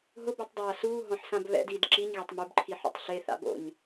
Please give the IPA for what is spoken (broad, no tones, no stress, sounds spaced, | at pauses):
ɦ ʊ b u tˤ dˤ aː s uː ɦ ɔ̃ ħ s ã b β ɛ̰ d iː d ǁ i ɲ ɣ a tˤ m u b ǃʰ i ħ o̰ tˤ ɬ e θ a̰ b o̰ ɲ